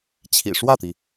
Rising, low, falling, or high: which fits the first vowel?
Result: low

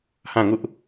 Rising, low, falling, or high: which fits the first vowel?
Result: falling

